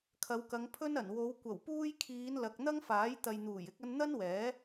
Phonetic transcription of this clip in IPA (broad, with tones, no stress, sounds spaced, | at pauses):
kʰ ɐ˨˧ w k ɐ˨˧ ŋ pʰ ɵ˥ n ɐ˨˩ n w o˨˧ w kʷ ɐ˨˩ w p uː˧ j kʰ iː˨˧ n l ɐ˨ k̚ n̪ ɐ˥ ŋ f aː˨˥ j t̪ ɐ˨ j n̪ uː˨˩ j ɪ˧ k̚ ɐ˧ n n̪ ɐ˥ n w ɛː˨˥